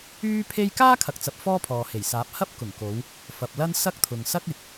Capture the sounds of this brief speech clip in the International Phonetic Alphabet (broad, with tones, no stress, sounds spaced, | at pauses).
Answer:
yː˥ pʰ e˥ j k aː˥ kʰ ɐ˨ k̚ t͡s ɐ˨ p̚ f ɔː˥ pʰ ɔː˨ h e˨˩ j s aː˨˥ p̚ h ɐ˥ p̚ k ʊ˨˩ ŋ k o˨˧ w | f ɐ˨ p̚ l ɐ˥ n s ɐ˥ k̚ t̪ʰ ʊ˨ ŋ s ɐ˥ k̚ ɪ˨˥ k̚